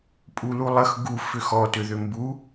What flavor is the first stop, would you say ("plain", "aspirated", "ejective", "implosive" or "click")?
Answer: ejective